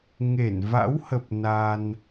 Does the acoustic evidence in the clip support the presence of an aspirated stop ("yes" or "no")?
no